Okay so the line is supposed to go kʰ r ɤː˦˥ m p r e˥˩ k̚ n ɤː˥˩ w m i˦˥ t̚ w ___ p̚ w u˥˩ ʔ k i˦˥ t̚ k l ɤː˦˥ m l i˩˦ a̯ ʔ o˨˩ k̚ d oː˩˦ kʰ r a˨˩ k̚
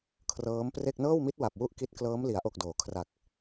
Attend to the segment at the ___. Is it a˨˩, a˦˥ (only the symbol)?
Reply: a˨˩